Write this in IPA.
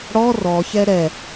ɽ ɔ r ɔ ç ɛ ɾ ɛ

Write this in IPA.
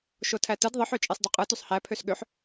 ʃ o tʰ æ t ɯ d ðˤ ɯ ħ ø t͡ʃʼ e sˤ d ø qʼ ɯ t y sˤ h æ pʰ ø s ɠ ø ħ

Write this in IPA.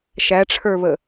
ʃ æ ʈ͡ʂʰ ə˞ β ə

